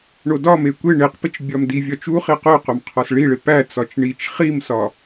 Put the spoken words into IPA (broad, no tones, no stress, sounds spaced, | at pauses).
ɳ o d ɒ m e kʷ e ɳ e q p i t͡ʃ bʲ ɒ m d i vʲ ɒ t͡ʃ u χ i q o q o m qʰ ɒ s ɭ i ɭ e p æ t͡s ɒ t͡ʃ ɳ i t͡ʃ χ i m s ɒ